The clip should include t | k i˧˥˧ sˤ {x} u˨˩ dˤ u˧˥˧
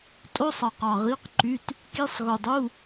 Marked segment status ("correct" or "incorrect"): incorrect